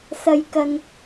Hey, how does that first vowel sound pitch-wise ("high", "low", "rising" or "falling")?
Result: low